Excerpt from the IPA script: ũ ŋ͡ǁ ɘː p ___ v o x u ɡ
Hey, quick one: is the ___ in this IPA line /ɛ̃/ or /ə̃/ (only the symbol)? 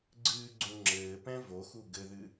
ɛ̃